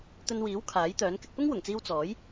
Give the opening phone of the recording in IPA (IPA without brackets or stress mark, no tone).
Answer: t̪